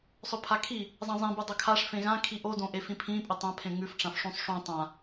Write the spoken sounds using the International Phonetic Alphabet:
sˤ ɵ pʰ a kʰ i | zˤ ɐ̃ zˤ ẽ b u dˤ ɐ kʰ a ʂ f ẽ ɣ ã kʰ i ʔ o d õ ʔ e f ĩ pʰ ĩ pʼ ɵ tˤ ã pʰ ẽ ŋ ʉ f ʈ͡ʂ ã f ʂ ũ sˤ ʂ õ tˤ ã

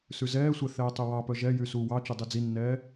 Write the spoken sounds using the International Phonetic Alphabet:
s ʉ z ɛː sʷ ɛ θ ɛː tˤ ʉ w ɑ p œ ʒ ɛ j y s uː w ɑ t͡ʃ y dˤ i d͡z i nː ɛː

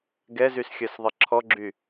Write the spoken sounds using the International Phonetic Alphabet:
ɡ ɛ z y s xʲ œ s ðˤ ə ǁʰ ɔ ɡ͡ǁ y

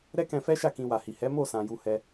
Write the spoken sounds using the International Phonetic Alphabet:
ɾ ɛ˦ k ɛ̃˧ f ɛ˦ ʃ a˦˨ k ĩ˧ w a˨ h i˨ h ɛ˨˦ m o˦˨ s ã˨ j u˧ h ɛ˧

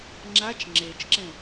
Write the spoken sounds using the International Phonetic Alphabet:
ŋ͡ǁ a t͡ʃ ŋ͡ǁ e t͡ʃ ǁ ɛ̃

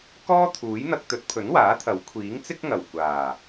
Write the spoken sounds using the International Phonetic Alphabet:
k ɔː˥ t̪ʰ uː˨˥ j n̪ ɐ˧ k̚ t̪ ɵ˨˥ t̚ pʰ ɵ˨˥ n w aː˨˥ t̪ʰ ɐ˨˥ w kʷʰ iː˨˥ ŋ t͡s ɪ˥ k̚ ŋ ɐ˨˩ w kʷ aː˨˩

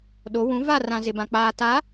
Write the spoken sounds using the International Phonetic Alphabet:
ɗ o˨˦ w ũ˨˦ v a˦˨ r ã˨ z ɪ˨ b ã˨ k͡p aː˨ t a˨˦

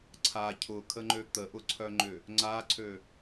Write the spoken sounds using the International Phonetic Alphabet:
ǀʰ a cʰ ʊ kʰ ə ŋ͡ǃ ø t̪ ə ʔ ʊ ǀʰ œ ŋ͡ǃ ʏ | ŋ͡ǀ a ǀʰ ø

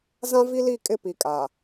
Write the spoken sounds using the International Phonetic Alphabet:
z ã˦ v i˦ l i˦˨ kʼ ɪ˦ p i˨ kʼ a˨

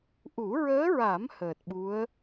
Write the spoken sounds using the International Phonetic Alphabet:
ʔ u˨˩˦ ɹ əː˧˥ ɹ a˨˩˦ m h əː˨˩ t̚ ɓ u˧˥ ə̯

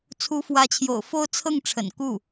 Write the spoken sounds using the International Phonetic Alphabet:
t͡sʰ u˧˥ f w ä˧˥ t͡ɕʰ j o̰˨˩ ʊ̯ f o˥ ʊ̯ t͡sʰ ɤ˥˩ ŋ ʈ͡ʂʰ ə̰˨˩ n k u˥˩

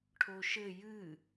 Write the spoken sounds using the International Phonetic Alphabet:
ʈʰ o ʃ ɘ j ɨ

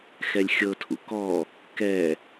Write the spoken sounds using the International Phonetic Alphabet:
x ɛ lʲ xʲ ɤ tʰ ṵ k ɔ | k ɛ

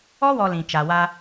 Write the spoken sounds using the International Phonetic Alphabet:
ɔ˦ w ɔ˨ l ĩ˨ t͡ʃ a˨ w a˦

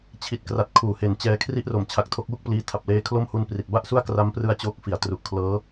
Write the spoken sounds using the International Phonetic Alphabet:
t͡ɕʰ i˨˩ t̚ k r a˨˩ t̚ kʰ uː˨˩ h e˨˩ n t͡ɕ ɛː˧ kʰ r i˥˩ ʔ r o˨˩ m t͡ɕʰ a˨˩ k̚ tʰ o˦˥ k̚ w u˥˩ k̚ p l iː˦˥ tʰ a˨˩ p̚ l eː˧ kʰ l o˥˩ m h u˧ n p r i˨˩ t̚ b a˥˩ ʔ s u˥˩ a̯ k r a˦˥ m p r ɯ˧ a̯ t͡ɕ oː˦˥ k̚ f i˩˦ a̯ t r u˨˩ ʔ kʰ l ɤː˦˥

